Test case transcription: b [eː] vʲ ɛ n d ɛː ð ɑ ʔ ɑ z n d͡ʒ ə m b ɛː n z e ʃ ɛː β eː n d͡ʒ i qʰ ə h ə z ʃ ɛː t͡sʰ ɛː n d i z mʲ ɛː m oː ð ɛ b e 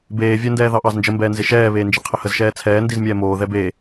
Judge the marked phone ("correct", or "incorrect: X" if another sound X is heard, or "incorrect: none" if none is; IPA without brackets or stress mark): correct